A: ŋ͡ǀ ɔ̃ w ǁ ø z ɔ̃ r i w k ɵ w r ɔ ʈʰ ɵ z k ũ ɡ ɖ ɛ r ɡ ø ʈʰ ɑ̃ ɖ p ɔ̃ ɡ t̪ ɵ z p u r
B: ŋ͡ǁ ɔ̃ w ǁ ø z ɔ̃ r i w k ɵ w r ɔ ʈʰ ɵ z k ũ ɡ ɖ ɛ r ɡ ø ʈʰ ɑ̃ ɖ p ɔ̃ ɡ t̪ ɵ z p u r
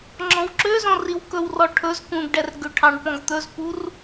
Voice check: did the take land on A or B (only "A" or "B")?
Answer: B